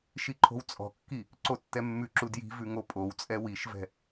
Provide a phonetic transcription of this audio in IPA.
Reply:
ʃiǃʰo̤wt͡sʼɔ̤kːi | ǀotːɛmːʉǁu dji̤vʉ ŋopʼowt͡sʼɛ wiʃvɛ̤

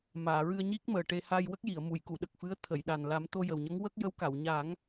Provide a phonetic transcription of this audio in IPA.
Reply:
maː˨˩˨ɹɨ˧ə̯ɲi˦˥k̚məː˨˩ ʈe˧ haː˧jwə˦˥k̚ji˨˩˨ə̯ mu˨˩˨jku˨˩˨ɗə˨˩k̚ fɨ˧˥ə̯t̪ʰə˨˩˨jɗa˨˩n la˨˩˦mt̪o˧jə˨˩wɲə˧˥ŋ wə˦˥k̚ jə˧˥wka˨˩˨wɲa˨˩˦ŋ

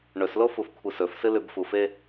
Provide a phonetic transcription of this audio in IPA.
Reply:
ɳɵslo fufkʷʰɨsɵfsɨ lʉbfufe

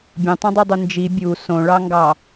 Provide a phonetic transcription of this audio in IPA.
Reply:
bʲũtˤũdˤydˤu nd͡ʒi bʲu sõɭɑŋɡɑ

